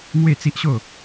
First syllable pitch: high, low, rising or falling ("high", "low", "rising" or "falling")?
falling